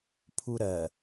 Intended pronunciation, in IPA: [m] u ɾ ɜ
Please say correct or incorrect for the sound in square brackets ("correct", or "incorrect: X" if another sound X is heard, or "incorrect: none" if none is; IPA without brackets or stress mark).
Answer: incorrect: pʰ